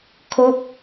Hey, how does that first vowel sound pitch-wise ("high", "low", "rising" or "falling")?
falling